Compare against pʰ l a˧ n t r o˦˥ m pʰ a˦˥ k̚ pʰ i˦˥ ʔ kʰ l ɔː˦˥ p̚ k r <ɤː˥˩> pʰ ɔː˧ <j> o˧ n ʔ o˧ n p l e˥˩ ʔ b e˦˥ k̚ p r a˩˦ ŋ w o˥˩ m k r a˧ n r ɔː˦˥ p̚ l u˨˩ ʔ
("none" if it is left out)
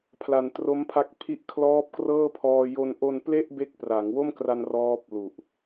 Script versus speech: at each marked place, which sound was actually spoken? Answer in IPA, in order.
ɤː˥˩, j

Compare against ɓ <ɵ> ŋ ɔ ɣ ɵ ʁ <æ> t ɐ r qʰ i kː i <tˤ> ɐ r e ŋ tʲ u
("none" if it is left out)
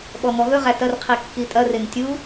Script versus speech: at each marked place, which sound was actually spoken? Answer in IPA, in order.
ɔ, æ, tʼ

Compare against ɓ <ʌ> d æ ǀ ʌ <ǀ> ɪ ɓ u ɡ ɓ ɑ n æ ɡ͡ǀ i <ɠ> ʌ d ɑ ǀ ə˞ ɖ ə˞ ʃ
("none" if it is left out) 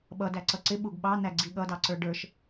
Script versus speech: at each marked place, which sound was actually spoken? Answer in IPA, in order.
ʌ, ǀ, ɠ

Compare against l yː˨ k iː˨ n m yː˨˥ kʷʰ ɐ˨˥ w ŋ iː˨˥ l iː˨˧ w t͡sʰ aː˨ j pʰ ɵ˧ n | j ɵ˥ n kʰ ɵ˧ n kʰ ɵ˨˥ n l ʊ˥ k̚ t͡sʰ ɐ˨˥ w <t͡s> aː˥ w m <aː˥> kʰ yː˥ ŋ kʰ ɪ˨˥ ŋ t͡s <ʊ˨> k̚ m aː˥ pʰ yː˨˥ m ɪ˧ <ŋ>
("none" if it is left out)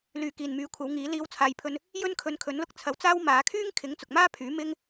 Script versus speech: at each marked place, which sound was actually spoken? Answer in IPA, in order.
t͡s, aː˨˧, ʊ˨, ŋ

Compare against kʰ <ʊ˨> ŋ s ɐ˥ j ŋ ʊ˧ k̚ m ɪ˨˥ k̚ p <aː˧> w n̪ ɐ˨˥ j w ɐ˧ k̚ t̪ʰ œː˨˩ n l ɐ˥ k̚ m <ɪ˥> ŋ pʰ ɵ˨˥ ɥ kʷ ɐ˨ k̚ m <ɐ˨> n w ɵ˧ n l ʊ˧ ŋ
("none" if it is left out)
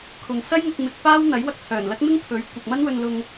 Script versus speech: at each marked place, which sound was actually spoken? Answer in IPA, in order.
ʊ˨, aː˥, ɪ˥, ɐ˥

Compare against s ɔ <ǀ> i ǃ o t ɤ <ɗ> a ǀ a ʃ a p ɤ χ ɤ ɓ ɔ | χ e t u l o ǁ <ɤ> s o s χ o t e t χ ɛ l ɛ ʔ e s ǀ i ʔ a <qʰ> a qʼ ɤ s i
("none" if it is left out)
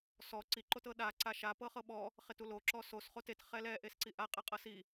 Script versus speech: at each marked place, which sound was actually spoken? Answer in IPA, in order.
ǀ, ɗ, ɔ, qʼ

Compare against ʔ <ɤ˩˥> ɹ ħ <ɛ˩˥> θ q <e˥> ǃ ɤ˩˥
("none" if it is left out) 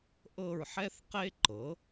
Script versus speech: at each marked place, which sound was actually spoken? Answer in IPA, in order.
ɤ˦˨, ɛ˥, e˥

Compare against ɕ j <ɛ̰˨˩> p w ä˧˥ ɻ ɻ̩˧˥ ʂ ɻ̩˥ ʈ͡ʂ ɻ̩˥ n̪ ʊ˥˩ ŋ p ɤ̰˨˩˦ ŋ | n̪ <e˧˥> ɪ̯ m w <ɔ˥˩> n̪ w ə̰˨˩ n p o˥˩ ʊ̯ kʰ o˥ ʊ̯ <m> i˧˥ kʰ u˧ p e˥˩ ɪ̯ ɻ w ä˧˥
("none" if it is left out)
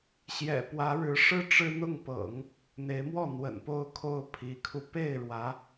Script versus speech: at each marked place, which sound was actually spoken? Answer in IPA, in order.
ɛ̰˨˩, e˧˥, ɔ˥˩, pʰ

